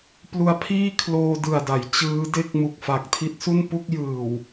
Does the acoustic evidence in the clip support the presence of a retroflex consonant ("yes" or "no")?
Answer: no